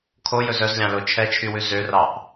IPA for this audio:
kʰojɵz œzlʲɑ̃lo t͡ʃʰɛt͡ʃʰywʉ zørɑʔ

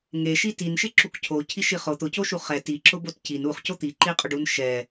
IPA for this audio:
ŋeʃi tin ʃɪǁukcʰo cʰiʃiχo t̪ʊcoʃu χɛ tiǁʊbot cin uχ cot̪iǃiqʼʊɖ unʃɛ

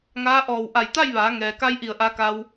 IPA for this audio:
ŋaː˧˥ʔɔː˧˩w ʔa˧˩jt̪a˥˨jʋaː˩˧ ŋɛː˩ka˧j ʔi˧˩ə̯ʔa˧ka˧w

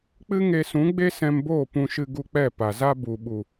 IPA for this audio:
k͡pɨ˦ŋe˧sũ˨˦ ɡ͡be˦sɛ̃˧mboː˦˨ pũ˧ʃɨ˧ɡu˧k͡pɛ˦˨ pa˨za˦ bu˨ɓu˨

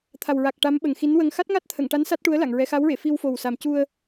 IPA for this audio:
t̪ʰa˨˩wɹa˨˩k̚ ʈa˧˥mɓə˨˩ŋxi˧˥nwə˧ŋ xa˦˥t̚ŋa˦˥t̚t̪ʰə˨˩˨ŋʈa˧˥n sa˦˥t̚ʈu˧˥ə̯la˨˩˨ŋ ɹɛ˧˥ xa˧˥wɹe˨˩˨ fi˧wfo˨˩w sa˨˩mcu˧ə̯

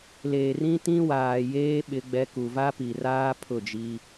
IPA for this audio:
leː˨rĩ˦ tĩ˦waː˨jeː˦ ɓɪ˦ɡ͡bɛ˦ ku˨va˦pi˨raː˦ pʰʊ˦˨d͡ʒi˦

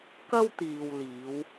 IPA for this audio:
kɐ˥wt̪iː˨wliː˨˧w

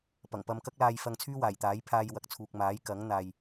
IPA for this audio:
pɐ˨˩ŋpɐ˧m kɐ˥k̚laː˧jfɐ˧ŋt͡sʰyː˥ waː˨˩jt̪aː˨˥j pʰaː˧jwɐ˨k̚t͡sʰuː˨k̚maː˨˥j kɐ˨˥ŋn̪aː˨j

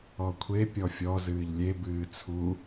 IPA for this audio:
ɔkʷʰe pʲɔfʲɔ zɨːʎlʲe bɨːt͡sʰu

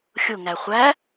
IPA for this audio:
xʲʊŋæ χʷæ

